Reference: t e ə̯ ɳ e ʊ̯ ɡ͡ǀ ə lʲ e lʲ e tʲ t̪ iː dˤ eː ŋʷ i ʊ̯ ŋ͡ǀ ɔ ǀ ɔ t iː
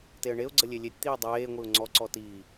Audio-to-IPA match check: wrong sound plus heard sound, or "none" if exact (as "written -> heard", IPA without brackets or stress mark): none